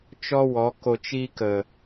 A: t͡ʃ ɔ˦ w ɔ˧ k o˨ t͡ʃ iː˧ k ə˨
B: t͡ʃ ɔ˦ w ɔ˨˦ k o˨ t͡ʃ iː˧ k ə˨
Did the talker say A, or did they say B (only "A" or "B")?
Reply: B